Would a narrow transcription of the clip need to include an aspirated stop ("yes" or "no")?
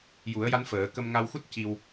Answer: no